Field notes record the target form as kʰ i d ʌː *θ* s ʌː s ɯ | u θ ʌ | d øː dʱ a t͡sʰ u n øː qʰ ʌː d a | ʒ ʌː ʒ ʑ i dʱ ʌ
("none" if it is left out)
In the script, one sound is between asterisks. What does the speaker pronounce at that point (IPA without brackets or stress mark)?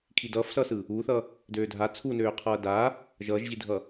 f